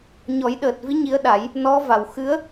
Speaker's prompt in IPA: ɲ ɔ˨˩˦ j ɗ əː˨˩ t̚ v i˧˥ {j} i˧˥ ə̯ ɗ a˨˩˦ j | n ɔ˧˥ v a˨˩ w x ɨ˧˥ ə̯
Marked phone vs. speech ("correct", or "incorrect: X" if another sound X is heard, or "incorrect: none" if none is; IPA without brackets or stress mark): incorrect: ɲ